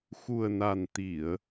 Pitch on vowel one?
low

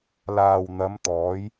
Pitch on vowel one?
low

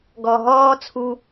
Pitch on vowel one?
low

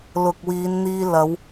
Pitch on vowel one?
low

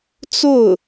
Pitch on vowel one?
falling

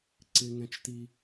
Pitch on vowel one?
high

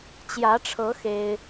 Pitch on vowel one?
rising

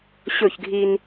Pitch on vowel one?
falling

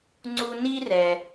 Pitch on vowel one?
high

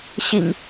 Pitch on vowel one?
low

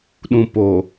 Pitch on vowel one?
low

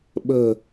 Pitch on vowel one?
low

